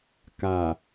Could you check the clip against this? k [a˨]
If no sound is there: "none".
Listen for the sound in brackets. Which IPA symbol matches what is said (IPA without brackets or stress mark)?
a˨